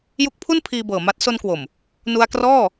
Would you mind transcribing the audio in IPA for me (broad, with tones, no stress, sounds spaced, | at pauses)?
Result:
j u˦˥ k̚ pʰ u˥˩ n pʰ iː˧ b ɤː˨˩ m a˦˥ t̚ s o˧ n k w o˨˩ m | n u˧ a̯ k r ɔː˥˩